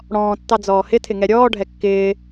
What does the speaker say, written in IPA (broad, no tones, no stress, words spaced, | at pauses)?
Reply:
ɽɔ̃ːtːɑ d͡zɔːhɪtʰɪ ŋɛɾʲɔːɖʱɛ kːɪː